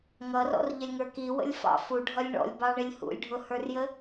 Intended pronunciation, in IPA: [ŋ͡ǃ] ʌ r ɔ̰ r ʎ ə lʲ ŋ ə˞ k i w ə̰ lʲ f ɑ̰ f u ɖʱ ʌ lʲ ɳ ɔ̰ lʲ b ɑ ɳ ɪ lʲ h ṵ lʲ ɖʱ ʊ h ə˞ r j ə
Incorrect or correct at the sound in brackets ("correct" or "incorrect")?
incorrect